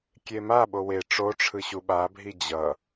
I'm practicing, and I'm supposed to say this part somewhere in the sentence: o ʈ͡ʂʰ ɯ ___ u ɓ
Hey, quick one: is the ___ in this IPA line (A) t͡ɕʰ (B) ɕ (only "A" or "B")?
B